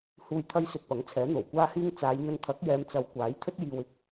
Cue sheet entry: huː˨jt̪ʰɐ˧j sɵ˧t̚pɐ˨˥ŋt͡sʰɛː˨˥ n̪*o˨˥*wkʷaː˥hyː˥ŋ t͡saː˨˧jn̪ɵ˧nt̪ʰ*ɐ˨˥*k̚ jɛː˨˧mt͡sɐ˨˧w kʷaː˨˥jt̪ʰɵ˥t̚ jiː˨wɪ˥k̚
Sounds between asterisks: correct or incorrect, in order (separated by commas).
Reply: incorrect, correct